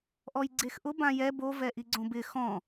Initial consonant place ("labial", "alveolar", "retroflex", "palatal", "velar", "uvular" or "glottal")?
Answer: glottal